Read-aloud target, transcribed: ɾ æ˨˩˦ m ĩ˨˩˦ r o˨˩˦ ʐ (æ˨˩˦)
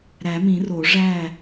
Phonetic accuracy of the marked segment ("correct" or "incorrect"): incorrect